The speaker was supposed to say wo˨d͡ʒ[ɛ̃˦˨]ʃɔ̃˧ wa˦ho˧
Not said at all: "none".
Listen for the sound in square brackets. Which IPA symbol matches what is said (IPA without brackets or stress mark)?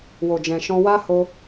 ɛ̃˨